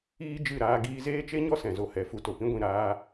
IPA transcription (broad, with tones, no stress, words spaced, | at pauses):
iː˦d͡ʒɨ˦˨ɾaː˧ ɡiː˧zeː˦t͡ʃe˦ɲɔ˦ sɛ̃˨zo˧hɛ˨ fu˧to˨pĩ˦ɡʷĩ˦˨ ɾaː˧